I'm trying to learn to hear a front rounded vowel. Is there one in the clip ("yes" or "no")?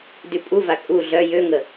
yes